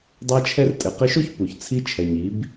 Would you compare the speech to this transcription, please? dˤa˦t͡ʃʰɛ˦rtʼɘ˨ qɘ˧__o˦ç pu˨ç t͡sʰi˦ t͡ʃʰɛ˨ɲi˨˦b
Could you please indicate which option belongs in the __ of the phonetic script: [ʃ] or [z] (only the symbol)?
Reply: ʃ